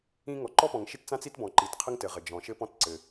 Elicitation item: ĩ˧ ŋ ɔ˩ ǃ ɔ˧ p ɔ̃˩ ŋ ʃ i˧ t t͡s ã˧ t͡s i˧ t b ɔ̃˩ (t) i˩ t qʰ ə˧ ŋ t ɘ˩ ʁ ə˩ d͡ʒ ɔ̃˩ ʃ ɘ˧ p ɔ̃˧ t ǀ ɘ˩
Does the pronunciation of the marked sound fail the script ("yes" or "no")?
yes